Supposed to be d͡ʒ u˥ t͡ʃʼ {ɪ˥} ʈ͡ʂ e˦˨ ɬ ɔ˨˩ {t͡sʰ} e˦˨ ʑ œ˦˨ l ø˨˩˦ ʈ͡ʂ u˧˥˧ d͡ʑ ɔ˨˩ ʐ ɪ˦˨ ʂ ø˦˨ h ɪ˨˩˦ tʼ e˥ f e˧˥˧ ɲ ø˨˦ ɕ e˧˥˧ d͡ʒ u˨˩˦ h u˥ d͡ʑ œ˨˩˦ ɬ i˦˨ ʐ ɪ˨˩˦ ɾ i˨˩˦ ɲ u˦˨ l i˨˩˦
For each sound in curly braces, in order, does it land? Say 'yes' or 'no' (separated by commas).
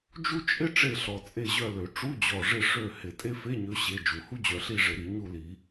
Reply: yes, no